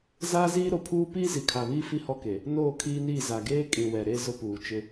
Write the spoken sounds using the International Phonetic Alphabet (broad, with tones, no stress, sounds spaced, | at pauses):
z aː˦ z iː˦ ɾ o˨ pʰ uː˦ p iː˦ z i˨ kʰ a˨ β iː˦ f i˦ h ɔ˦ k e˨ | n oː˦˨ kʰ iː˦ n iː˦˨ z a˨ ɡ eː˦ kʼ ĩ˨ w ɛ˨ ɾ e˦˨ z ʊ˦ p uː˨ t͡ʃ ɪ˦